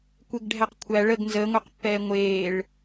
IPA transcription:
kʷeɡɖʱæqkʷʰæ ɭəɡ nzəːŋʷɛqpːɛː ŋʷeːɭ

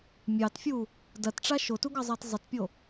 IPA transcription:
mʲɑtfʲu | dɐtʈ͡ʂa ʃotuɡɑzˤɑt zˤətpʲo

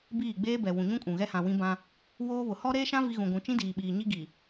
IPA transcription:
biː˦˨ɡ͡beː˦bɛ˨ wũ˨ɲũ˦kʼũ˨ ɣɛ˦hã˨wĩ˦bã˦ | woː˦βʊ˨ hɔ˦ɾeː˦ʃã˦ vi˦ɣũ˨ɡʷũ˨˦ t͡ʃĩ˦diː˨ɓiː˨ ɲi˦ɡi˨

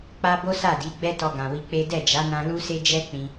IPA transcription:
k͡pa˦ bo˦sa˦˨di˨˦ ɡ͡bɛ˦tɔ˧ ɡã˨wi˧k͡pe˦ dɛ˦˨d͡ʒa˨˦nã˧ lu˦se˦d͡ʒɛ˦ k͡pĩ˦

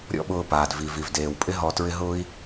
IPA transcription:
ɾʲɔ̰˥ɓʊː˧ paː˩dvi˩vi˩v deː˩wpʼɪ˥ ɦɔ˧ tɹɪ˧ ɦʊː˥i̯

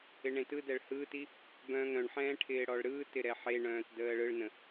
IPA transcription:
ɪɳẽtɯdɛɭ hɯːti | bœ̃ːŋɾœ̃ɳħɛ̃ː ʈʰɪːɽɔɭɾɯːtɪ ɾɛħeɳœ̃ːt dəːɭɯɭnə̃

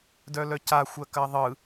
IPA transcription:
dœlœca xʷɜkɐːðˤɯ

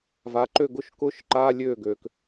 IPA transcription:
va˩˧ǃø˥˩ɡʊ˦˥ʃ kʊː˦˥ʃǃaː˧˥˧lʲøː˥˩ ɡøː˩k

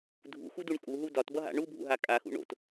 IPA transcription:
dʱṵxuduɳ kʼuɦu dɒtbʌɦa̰ ɳubʱṵɦa kʼaxṵ ɳo̰t

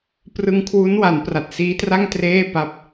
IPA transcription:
prɯ˧ŋkʰwu˦˥nwa˩˦n pra˨˩t̚siː˦˥tra˥˩ŋ treː˥˩ pa˦˥p̚

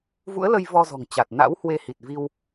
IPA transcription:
vṵ˧˥ə̯lə˧j vɔ˧zɔ̤˨˩ŋt͡ɕa˨˩t̚ na̰˧˥whwe˧ hi˨˩t̚vi˧w

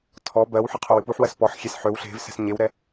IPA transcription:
tʰɔ bɜwħɯ qʰowɨpuħwɜs pɔħxʲes ħøw ɬe̤vsɛ̤s ɲewɾɛ

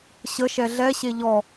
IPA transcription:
ɕəʃɛ ɮɛɕe ʎɔ

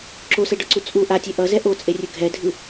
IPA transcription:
ǁosɛɖʌǀu t͡sʼu ʔatʲɛ ʔʌzɛ ʔot͡sʼerʲɯ ɡʱɛdʱɯ

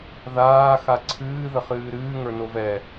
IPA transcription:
ðaː xaǀʰɨː ðəχɨːɾɨː ŋə˞novɛ

